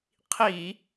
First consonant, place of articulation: uvular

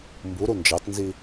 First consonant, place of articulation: labial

